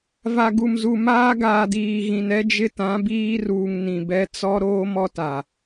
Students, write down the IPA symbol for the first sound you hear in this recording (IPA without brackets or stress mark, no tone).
v